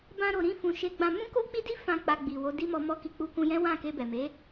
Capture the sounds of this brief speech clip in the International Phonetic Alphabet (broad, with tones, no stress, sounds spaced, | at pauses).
b ã˧ ɾ o˨ ɾ ĩ˧ f ũ˨ ʃ e˧ ɡ͡b ã˧ m ũ˦ k o˦ k͡p i˦ d i˦ f ã˦˨ k͡p a˧ ɡ͡b i˨ w o˨˦ d i˦ m ɔ˧ m ɔ˦ k i˧ k͡p u˧ k ũ˧ j ɛ̃˦ w ã˦˨ k e˧ b ɛ˨ m e˨˦